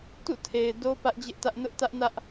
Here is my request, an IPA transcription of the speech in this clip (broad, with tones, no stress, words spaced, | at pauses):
tṵ˦˨tʰe˨ɪ̯ do˦ pä˦ʔd͡ʑɪ˦ʔtä˦ʔ nʊ˦ʔtä˦ʔnä˦ʔ